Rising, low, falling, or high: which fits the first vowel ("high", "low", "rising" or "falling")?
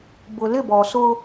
low